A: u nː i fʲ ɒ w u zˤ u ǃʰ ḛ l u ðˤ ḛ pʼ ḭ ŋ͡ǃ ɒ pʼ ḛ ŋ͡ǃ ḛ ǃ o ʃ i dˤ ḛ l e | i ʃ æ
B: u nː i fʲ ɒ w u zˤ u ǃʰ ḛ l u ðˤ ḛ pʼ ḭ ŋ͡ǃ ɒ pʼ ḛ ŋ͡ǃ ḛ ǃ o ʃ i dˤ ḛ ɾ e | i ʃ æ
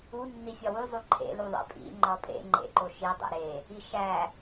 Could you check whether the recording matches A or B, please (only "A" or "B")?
B